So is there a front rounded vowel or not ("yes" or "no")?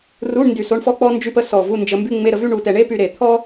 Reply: yes